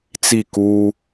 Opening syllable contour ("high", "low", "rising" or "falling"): falling